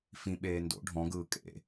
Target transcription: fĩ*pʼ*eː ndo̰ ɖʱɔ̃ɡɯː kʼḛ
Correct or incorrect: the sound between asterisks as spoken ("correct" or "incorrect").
incorrect